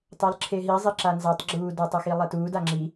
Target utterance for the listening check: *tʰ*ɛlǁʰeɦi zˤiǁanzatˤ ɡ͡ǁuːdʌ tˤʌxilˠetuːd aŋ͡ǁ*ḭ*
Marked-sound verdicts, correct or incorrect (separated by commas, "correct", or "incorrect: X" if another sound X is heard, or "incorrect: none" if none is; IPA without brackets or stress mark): incorrect: tˤ, incorrect: i